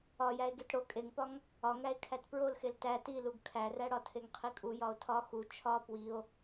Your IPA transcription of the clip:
ɒjæe̯ ɡetɽo kʼeŋpɒŋ | ɒŋæe̯ kʰætpɹolxel tæ tiluɡ kʰæræɽɒ tʰeŋqʰikʼu jɒo̯tʰɒ xu t͡ʃʰɒ pwio̯

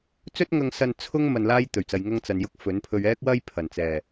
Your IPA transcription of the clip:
t͡sɵ˥t̚ŋɐ˧ŋsɐ˧n t͡sʰʊ˥ŋ mɐ˨nlaː˧j t̪ɵ˨˩ɥt͡sɐ˨j ŋɐ˧ŋt͡sɐ˨njʊ˧k̚ fɵ˨˥npʰɵ˧ɥ ɛː˥k̚wɐ˥jpʰɐ˨˩nt͡sɛː˨˩

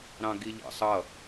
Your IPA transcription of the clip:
ɾɑ̃ɡiʎɑ̰sˤʌ

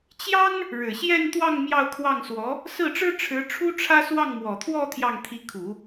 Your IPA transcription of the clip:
t͡ɕjɑ˥ŋ | ɻɻ̩˨˩ɕjɛ˥˧nt̪wɑ˥˧ŋ mjɑ˥˧ʊ̯kʰwɑ˥˩ŋswɔ˧˥ | sɹ̩˥˩ʈ͡ʂɻ̩˥ ʈ͡ʂʰɻ̩˧˥ʈ͡ʂʰu˥ʈ͡ʂʰä˥ swɑ˥˩ŋmwɔ˨˩t̪ʰwɔ˥˧ t̪ʰjɑ˥˩ŋt̪ʰi˧˥kʰu˨˩˦

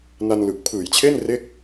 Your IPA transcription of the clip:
na˧n lɯ˨˩k̚pʰɯː˨˩jt͡ɕʰe˥˩n re˥˩k̚

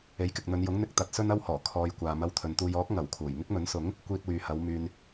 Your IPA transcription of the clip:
e˨˥jkɪ˨k̚n̪ɵ˨˧njʊ˨˥ŋ n̪ɪ˧k̚t̪ɐ˨˥t̚ sɵ˥nɐ˥whɔː˨˩ kʰɔː˧jkʷaː˨ mɐ˧wt̪ʰɵ˨nt̪uː˧j ɔː˨˥k̚ ŋɐ˨˩w kʰuː˨˩j ŋɪ˥k̚mɵ˨˥nsʊ˨˥ŋ | kʷiː˧t̚wyː˨hɐ˨˧w myː˨n

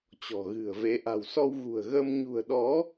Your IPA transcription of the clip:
t͡ɕɔ̤˨˩ ɣɨ̤˨˩ə̯ve˨˦ ʔa̤˨˩wsɔ˧wɣṳ˨˩ə̯ ɣə˧m ɲṳ˨˩ə̯ɗɔ˨˦

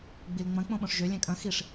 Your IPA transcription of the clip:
ɡ͡bilŋ͡mɐ̃ k͡põɓõʂʒø lʲɛ̃kʼɐ̃ xiʂ

